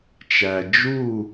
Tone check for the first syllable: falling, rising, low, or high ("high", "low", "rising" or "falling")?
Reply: low